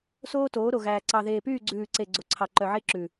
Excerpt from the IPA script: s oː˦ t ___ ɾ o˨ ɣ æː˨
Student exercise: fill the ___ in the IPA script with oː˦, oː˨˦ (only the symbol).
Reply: oː˨˦